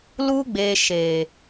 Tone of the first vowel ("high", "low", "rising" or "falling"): high